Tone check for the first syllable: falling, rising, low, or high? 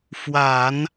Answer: low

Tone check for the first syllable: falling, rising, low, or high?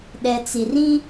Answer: low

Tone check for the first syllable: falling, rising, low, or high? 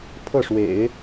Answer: falling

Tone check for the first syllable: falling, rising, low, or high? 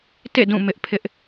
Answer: falling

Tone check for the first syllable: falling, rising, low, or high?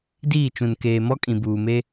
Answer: falling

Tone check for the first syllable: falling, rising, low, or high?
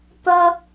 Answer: high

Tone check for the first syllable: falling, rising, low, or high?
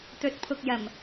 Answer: rising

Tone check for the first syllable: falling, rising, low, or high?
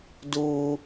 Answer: high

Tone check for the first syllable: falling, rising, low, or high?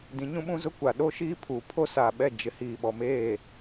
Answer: rising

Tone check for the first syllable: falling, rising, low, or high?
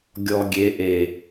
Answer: low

